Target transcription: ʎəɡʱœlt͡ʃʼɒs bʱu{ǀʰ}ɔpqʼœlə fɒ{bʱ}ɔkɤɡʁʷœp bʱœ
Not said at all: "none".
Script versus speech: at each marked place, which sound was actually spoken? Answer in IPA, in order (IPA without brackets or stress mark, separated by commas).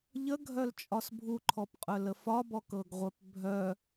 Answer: ǃʰ, b